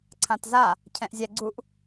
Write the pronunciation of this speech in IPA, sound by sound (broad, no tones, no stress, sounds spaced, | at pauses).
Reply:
ǀʰ ã t z a | cʰ ɛ̃ ʔ zʲ ɛ ɡ͡ǀ u ʔ